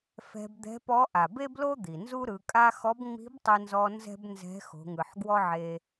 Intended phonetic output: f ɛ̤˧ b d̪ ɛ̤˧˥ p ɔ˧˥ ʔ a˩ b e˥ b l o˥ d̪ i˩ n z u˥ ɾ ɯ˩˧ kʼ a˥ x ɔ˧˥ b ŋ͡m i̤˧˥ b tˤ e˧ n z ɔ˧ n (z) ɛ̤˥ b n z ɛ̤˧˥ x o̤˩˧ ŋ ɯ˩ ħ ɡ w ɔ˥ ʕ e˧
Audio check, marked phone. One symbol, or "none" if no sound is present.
z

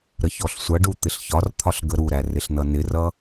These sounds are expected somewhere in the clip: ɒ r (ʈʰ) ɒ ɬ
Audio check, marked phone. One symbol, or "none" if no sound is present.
t̪ʰ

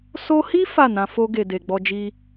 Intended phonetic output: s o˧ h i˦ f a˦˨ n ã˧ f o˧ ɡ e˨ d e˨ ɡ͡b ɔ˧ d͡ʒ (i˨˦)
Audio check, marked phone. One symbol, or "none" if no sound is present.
i˦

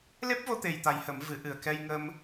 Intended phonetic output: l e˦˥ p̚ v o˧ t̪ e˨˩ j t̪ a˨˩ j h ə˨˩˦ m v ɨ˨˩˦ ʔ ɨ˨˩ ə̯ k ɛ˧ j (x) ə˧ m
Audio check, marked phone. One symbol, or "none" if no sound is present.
ŋ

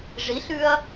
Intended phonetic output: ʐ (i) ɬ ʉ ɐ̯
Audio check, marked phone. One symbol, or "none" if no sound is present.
i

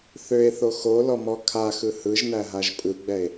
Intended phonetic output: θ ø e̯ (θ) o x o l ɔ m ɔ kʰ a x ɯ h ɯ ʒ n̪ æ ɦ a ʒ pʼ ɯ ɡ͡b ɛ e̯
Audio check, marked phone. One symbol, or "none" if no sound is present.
θ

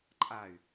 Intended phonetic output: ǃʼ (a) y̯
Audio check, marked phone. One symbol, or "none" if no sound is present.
a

